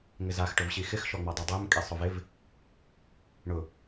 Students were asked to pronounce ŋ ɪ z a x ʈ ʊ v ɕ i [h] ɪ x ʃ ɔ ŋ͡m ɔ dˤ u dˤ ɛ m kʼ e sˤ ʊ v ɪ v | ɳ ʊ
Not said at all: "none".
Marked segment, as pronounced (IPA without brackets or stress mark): x